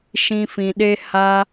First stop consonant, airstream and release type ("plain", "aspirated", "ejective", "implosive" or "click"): implosive